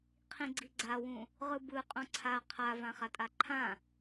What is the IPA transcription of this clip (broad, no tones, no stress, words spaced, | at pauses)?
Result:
qʰĩɡ͡ǀiɡ͡ǀawũ | ʁɯbɯ qʼõǀʰa qʰavã χatʼaǃʰã